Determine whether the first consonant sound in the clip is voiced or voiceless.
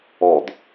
voiced